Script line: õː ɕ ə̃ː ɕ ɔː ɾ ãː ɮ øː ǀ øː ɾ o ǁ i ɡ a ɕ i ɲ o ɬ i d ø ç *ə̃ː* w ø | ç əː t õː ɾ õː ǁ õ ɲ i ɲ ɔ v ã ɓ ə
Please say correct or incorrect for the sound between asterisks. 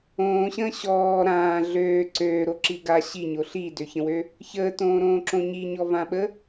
incorrect